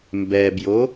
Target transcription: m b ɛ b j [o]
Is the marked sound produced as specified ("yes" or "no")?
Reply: yes